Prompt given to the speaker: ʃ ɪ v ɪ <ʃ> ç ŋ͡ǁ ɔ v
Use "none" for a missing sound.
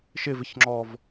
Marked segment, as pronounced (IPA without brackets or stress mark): none